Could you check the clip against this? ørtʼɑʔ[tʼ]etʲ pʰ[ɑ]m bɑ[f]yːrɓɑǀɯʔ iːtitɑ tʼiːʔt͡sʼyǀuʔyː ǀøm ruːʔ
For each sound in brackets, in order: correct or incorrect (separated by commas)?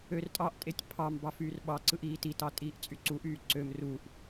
correct, correct, correct